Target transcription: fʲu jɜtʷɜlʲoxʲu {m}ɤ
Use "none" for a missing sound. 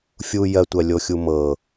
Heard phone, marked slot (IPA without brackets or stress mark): m